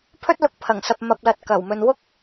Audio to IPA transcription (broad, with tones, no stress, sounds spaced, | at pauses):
pʰ ɵ˥ t̚ l ʊ˧ k̚ pʰ ɐ˨˩ ŋ s ɐ˨ p̚ m ɐ˨ p̚ l ɐ˨ t̚ k ɐ˨˩ w m ɵ˨ n w ʊ˥ k̚